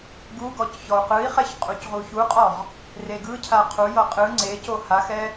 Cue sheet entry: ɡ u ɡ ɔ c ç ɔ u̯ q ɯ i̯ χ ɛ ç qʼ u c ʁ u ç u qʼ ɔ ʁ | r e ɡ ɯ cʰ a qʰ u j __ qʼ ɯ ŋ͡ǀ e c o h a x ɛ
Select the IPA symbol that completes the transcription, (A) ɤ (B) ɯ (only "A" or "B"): A